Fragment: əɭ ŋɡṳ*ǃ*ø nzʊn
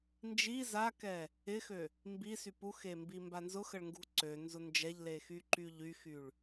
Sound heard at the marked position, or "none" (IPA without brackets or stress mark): ǀ